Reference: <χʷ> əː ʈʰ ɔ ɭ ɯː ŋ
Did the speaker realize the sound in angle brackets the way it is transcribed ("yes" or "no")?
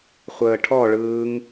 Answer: yes